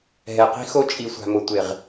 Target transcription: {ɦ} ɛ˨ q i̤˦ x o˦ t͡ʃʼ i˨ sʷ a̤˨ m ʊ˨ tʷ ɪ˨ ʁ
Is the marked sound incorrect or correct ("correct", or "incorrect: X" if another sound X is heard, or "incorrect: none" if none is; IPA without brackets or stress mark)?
correct